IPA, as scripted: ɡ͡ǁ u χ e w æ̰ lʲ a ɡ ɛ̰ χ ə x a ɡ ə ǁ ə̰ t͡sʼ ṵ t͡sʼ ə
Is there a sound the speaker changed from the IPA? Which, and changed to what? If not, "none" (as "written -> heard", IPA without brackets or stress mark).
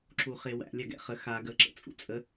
ɡ͡ǁ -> ǁ